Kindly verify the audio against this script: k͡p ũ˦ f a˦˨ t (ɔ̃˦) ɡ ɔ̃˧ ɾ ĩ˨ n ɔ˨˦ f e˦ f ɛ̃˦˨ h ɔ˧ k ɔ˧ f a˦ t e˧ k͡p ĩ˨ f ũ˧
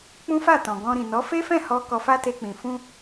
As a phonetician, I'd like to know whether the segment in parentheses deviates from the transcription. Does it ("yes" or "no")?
yes